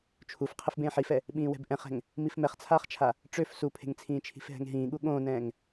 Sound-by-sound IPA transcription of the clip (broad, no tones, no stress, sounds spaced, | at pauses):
t͡ʃʰ u f qʰ ɘ f b ẽː ħ i f ɛ | ɓ ĩː w ɛ̤ b ʔ ɛ̃ χ ɛ̤ ŋ | m i f m ɛ χ t͡sʰ aː χ t͡ʃʰ a | ʈ͡ʂ ø f s u pʰ e̤ ŋ t͡sʰ ĩː t͡ʃʰ i̤ f ɦ ɛ̤ ŋ ɦ ĩː ɠ u ɠ õː n ɛ̃ː ŋ